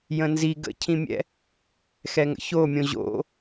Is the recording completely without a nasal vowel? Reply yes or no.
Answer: no